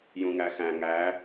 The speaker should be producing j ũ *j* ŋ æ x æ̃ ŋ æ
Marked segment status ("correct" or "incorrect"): incorrect